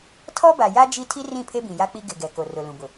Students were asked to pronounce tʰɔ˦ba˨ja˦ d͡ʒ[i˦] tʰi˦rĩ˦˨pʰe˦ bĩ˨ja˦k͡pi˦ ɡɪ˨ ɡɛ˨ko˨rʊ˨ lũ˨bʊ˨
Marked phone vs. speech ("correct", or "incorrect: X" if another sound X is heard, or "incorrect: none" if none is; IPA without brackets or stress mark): correct